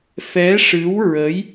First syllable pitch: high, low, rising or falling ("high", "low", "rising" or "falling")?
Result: rising